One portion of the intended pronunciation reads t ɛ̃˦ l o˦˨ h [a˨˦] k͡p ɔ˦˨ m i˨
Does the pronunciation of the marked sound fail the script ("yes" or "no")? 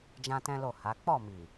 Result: no